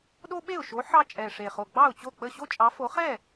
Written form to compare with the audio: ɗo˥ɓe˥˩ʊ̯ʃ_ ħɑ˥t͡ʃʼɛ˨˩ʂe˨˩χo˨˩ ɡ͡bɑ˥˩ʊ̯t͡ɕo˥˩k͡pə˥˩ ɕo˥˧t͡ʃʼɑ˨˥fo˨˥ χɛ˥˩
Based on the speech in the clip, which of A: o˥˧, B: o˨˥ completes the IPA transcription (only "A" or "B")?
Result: B